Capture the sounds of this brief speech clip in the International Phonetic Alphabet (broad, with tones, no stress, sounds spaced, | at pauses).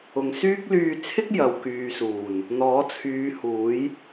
ʊ˨ ŋ s yː˥ k̚ l yː˧ t͡sʰ ɪ˥ k̚ j ɐ˨ w k yː˨ s uː˨˩ n | n̪ ɔː˨˥ t͡sʰ yː˨˧ h uː˨˥ j